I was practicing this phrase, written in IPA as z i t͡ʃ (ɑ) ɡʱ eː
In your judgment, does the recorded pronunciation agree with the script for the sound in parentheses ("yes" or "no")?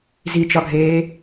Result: no